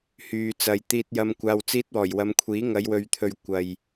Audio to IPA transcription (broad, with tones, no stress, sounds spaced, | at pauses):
h yː˨ t͡s ɐ˨ j t̪ iː˧ t̚ j ɐ˧ m kʷ aː˧ w t͡s iː˧ t̚ w ɔː˨˩ j w ɐ˨˧ m kʷʰ iː˨˥ ŋ ɐ˨˧ j w ɵ˨ ɥ t̪ʰ ɵ˨ ɥ kʷ ɐ˨ j